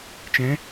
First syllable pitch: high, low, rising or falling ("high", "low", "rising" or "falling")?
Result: rising